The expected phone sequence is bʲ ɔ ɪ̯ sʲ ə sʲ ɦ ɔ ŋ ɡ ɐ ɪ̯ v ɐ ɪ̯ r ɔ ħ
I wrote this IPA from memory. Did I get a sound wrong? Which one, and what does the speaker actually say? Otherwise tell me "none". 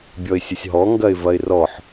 none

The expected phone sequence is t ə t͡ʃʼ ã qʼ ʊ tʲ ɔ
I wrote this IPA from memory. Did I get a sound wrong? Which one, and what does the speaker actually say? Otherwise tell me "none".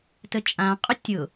ɔ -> ʊ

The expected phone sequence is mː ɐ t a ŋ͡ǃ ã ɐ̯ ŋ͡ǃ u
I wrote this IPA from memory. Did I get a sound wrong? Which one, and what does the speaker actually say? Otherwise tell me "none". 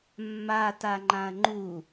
ɐ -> a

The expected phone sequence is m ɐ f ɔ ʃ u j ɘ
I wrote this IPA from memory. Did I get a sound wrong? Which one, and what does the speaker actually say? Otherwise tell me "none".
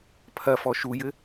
m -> pʰ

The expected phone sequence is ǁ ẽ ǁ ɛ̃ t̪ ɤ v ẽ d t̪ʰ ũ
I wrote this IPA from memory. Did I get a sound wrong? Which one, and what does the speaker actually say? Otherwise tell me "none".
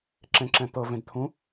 none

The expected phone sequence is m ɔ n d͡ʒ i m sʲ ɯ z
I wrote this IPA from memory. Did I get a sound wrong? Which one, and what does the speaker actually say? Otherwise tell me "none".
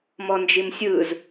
none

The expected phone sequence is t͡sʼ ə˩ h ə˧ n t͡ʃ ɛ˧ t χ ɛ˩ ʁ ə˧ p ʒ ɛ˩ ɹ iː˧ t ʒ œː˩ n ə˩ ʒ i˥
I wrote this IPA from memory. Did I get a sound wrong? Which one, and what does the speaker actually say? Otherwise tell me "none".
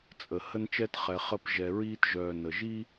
ʁ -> χ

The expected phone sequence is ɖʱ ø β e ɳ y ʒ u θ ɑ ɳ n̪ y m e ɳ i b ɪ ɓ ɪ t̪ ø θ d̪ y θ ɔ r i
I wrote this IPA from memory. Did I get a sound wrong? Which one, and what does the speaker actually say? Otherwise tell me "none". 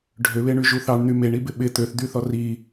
none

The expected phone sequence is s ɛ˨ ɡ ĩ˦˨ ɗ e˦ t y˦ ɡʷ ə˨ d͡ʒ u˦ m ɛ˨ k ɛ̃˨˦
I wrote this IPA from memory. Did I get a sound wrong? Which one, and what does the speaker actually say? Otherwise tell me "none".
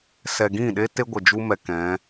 y˦ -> e˦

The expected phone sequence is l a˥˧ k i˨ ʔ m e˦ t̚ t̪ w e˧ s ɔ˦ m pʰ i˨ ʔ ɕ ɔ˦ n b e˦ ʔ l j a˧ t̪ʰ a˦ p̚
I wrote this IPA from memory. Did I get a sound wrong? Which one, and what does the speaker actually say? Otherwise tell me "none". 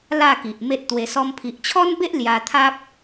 ɕ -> t͡ɕʰ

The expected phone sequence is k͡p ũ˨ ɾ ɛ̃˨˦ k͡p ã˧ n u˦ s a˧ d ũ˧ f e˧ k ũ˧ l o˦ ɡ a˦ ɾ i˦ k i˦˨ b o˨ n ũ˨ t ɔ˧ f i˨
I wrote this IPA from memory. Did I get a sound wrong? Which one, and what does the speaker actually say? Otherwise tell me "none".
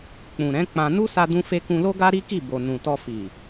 none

